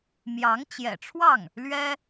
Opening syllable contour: rising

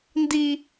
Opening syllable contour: high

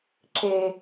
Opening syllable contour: low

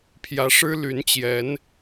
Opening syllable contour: rising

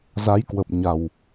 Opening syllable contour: rising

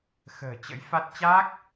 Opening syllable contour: low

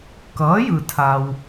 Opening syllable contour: rising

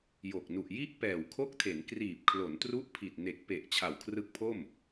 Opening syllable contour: low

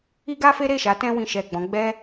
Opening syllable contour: high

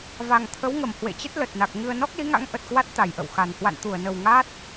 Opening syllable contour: low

